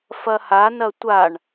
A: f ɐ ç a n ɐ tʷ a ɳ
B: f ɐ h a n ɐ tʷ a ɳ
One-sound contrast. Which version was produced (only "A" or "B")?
B